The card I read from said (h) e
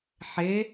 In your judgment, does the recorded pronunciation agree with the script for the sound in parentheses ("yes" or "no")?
no